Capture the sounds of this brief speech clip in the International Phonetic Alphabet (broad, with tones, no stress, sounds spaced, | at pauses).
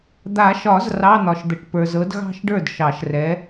d̪ a˨˩˦ ʃ ɒ˨˩˦ z r ɑ˧˥˧ n̪ ɒ˨ ʃ d̪ ə˨ ʈ p ə˞˨ z ɤ˨˥ d ɣ ɑ̤˥˧ ʃ ɖ ə˞˥˩ d ʃ ɑ˨˩˦ ʃ r ɛ˨˥